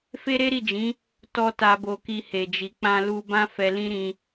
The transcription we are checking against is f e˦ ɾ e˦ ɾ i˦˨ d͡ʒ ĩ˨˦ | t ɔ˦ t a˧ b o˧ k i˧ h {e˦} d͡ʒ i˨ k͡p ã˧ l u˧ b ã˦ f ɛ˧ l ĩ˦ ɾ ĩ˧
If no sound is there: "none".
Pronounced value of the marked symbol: e˨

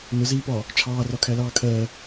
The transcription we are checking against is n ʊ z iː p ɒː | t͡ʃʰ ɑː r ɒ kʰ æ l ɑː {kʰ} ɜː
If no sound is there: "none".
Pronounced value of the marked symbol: kʰ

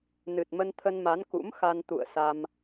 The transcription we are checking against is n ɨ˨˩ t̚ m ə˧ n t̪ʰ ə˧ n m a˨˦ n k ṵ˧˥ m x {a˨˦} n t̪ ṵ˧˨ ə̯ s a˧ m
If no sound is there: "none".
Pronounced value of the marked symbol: a˧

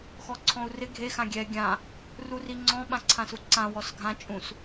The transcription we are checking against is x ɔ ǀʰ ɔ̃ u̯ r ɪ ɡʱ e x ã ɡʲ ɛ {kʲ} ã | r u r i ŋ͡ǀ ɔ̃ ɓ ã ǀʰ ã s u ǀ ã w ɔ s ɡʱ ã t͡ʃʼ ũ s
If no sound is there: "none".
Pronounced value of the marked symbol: ɡʲ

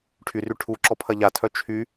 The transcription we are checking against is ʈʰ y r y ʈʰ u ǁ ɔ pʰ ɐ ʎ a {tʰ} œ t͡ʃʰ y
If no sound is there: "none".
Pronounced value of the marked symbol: tʰ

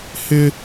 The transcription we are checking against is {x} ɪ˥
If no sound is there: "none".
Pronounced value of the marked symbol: h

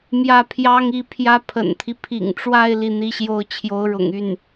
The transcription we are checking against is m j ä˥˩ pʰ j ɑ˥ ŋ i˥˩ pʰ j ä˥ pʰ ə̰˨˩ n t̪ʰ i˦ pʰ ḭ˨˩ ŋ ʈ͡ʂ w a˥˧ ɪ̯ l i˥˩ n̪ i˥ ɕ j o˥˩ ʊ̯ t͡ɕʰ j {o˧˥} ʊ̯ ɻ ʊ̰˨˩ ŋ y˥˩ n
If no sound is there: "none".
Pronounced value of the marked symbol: o˧˥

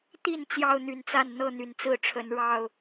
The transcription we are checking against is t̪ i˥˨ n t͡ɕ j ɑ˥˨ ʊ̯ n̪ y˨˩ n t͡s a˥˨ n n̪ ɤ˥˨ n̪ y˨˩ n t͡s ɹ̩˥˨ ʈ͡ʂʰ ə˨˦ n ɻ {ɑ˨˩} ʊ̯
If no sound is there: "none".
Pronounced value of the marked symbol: ɑ˨˩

